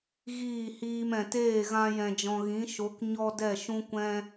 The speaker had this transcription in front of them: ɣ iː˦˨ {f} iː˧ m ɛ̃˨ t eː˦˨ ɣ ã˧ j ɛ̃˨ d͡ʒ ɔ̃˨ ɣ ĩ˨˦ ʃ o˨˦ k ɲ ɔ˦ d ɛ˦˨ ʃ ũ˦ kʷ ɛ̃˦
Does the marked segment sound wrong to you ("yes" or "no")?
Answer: yes